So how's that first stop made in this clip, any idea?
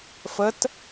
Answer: plain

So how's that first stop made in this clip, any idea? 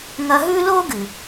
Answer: plain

